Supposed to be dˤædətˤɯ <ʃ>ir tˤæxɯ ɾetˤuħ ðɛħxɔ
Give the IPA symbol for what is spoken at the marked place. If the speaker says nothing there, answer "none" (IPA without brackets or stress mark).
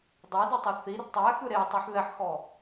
θ